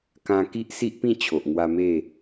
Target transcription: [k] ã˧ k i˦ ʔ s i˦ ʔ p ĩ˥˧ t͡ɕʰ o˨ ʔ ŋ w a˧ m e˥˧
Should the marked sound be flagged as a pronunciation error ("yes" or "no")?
no